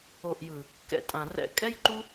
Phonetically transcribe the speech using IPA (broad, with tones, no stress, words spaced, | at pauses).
o˨ʔjɯ˨ | kɛ̰˧tʼã˨ rɛ̰˧ kʼɛ˦jǃu˦